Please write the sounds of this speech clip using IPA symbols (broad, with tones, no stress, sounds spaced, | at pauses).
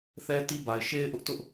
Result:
θ ɛ˦ t i˦ b a˨ ɪ̯ ʃ e˦ ɪ̯ ʔ ʊ˦ ʔ t ʊ˦ ʔ